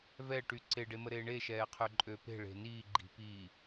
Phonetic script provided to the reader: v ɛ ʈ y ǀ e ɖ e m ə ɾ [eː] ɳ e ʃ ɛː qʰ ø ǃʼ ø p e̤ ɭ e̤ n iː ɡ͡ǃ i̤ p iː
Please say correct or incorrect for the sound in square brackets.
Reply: correct